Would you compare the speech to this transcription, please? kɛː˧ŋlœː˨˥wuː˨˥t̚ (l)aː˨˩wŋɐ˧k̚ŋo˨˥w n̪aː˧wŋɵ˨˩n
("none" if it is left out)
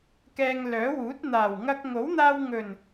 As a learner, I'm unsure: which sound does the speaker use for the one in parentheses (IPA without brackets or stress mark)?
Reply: n̪